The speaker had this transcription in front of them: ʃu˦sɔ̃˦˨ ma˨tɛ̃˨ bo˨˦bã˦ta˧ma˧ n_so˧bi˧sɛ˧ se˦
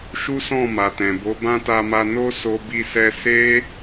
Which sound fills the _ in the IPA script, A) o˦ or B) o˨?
A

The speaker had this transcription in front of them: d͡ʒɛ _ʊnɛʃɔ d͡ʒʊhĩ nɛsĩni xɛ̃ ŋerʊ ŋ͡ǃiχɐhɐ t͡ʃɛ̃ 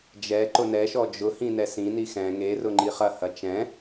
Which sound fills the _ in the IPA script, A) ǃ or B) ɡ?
A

